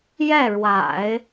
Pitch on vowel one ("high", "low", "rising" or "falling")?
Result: falling